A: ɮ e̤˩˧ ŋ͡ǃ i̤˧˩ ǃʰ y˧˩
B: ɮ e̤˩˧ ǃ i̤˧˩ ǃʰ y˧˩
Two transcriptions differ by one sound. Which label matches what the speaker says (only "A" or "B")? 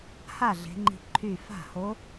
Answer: A